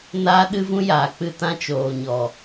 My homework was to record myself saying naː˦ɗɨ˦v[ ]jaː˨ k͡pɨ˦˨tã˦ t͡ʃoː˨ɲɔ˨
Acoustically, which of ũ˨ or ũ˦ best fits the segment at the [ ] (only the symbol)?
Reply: ũ˦